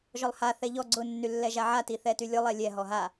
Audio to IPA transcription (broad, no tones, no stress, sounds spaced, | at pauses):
ʒ ɔ lˠ h a θ ɛ ʎ ɔ ɡ͡ǀ ʊ nː y lː ɛ ʒ a ʕ a t i θ ɛ t y lʲ ʊ lˠ ɛ lʲ ɛ ɦ ɔ ɦ a